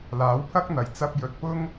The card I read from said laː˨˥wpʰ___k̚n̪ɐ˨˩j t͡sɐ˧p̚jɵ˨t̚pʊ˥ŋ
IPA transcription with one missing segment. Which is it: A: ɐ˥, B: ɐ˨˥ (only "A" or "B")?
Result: A